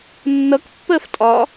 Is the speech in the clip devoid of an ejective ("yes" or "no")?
no